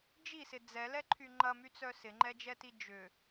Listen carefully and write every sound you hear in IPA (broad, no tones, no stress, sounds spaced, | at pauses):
d͡ʒ i s ɪ d͡z ɛ l ɛ ǃʰ y ŋ͡ǃ ɐ m y t͡s œ s ɪ ŋ͡ǃ ɛ d͡ʒ ɛ t i d͡ʒ ʏ